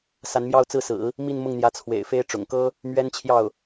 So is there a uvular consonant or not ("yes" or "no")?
no